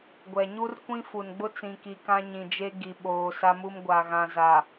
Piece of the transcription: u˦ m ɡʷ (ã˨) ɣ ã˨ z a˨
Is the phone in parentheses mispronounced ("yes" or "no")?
yes